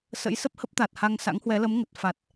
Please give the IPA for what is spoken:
s ə̰˧˥ j s ə˦˥ p̚ h ə˦˥ p̚ t̪ a˨˩ t̚ h a˧ ŋ s a̰˧˥ ŋ h w ɛ˨˦ l ə˨˦ m ŋ ə˨˩ t̚ f a˨˩ t̚

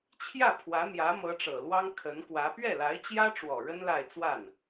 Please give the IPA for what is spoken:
t͡ɕʰ j ä˥˩ pʰ w ä˧˥ n̪ j ä˧˥ m ɤ˧˥ ʈ͡ʂ ɤ˨˩ l w ɑ˥ ŋ kʰ ə˧˥ n k w ä˧˥ p ɥ ɛ˥˩ l a˧˥ ɪ̯ t͡ɕ j ä˥ ʈ͡ʂ w ɔ˨˩ ɻ ə˥ n l a˥˧ ɪ̯ t͡s w a˥˩ n

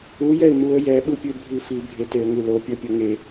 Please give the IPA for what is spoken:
u j ɛ ɪ̯ m u ə̯ j ɛ ɓ ɯ pʲ ɯ bʱ i f i bʱ e t e ə̯ ŋ ɯ l o pʲ ʌ pʲ ʌ ŋ e

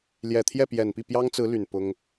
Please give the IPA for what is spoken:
l j ɛ˨˩ t̪ʰ j ɛ˥˩ p j ɛ˨˩ n p i˥˩ p j ɑ˥ ŋ t͡s ɹ̩˧˥ l y˨˩ n p ʊ˥ ŋ

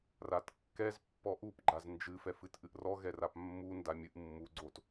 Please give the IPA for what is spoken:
r a t kː ɛ z pː ɔ ʔ u p ɡ͡ǃ a z n d͡ʒ ɨ f ɛ f ɨ t ʔ ɨ ʔ r ɔ ɣ ɛ r a p mː u n d a mʲ ɨ ʔ mː u ɡ͡ǀ o t

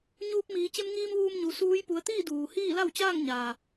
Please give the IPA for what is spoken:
ɲ uː˧ p̚ m iː˩˧ t͡ɕ e˧ m ŋ iː˧ m ʋ uː˧ m ɲ u˩˧ s uː˧˥ j p u˩˧ ə̯ t̪ iː˥˨ d uː˩ h iː˥˨ l a˥˨ w t͡ɕ aː˥˨ ŋ ɲ aː˩

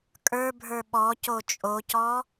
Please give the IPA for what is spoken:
kʼ ə˞ bʱ ə˞ ɓ ɔ c o t͡ʃʼ o c ɔ

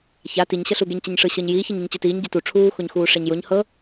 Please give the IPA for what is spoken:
ç a t i ɲ ɕ ɤ ɬ u ɡ e ɲ t͡ɕ ɛ ɲ ʂ ɯ ɕ ɤ ɲ j iː ç i ɲ ɯ ɲ t͡ɕ ɯ t iː ɲ ɟ i t u ʈ͡ʂʰ uː x o ɲ x uː ʂ ɛ ɲ j o ɲ h ɤ

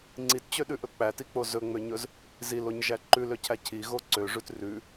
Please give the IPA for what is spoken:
ŋ͡ǀ i t t͡ɕ ø ɗ ʉ ʔ ɵ k͡p æ t i k͡p o z ɵ ŋ͡m ø ɲ ɵ z | z i l o ɲ ʒ æ ǃ ʉ l ø cʰ æ cʰ i ɣ o ǀ ø ʐ ʉ t r ʉ

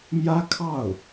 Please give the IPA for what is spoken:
m j ä˥ kʰ ɑ˥˩ ʊ̯

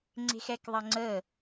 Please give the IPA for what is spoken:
ŋ͡ǀ e̤ x ɛ k ðˤ ɐ ŋ͡ǀ ə

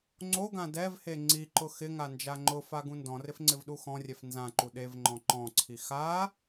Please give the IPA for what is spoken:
ŋ͡ǀ o ɡ ã d ɛ v h e ŋ͡ǀ i ǃ ʊ x ɪ ŋ a n d͡ʒ a ŋ͡ǃ ʊ f a ɡ ũ n d ɔ̃ r ɪ f ŋ͡ǀ ɪ v ɗ u x ɔ̃ rʲ ɛ f n z ã ǃ u ɗ e v ŋ͡ǃ ɔ̃ ǃ ɔ̃ ǀʰ i x a

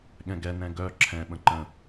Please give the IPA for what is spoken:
ɠ ɛ̃ ɡ ɛ n ɛ̃ ɡ œ ǁʰ ɛ̃ ɓ ə̃ ǃ ə̃

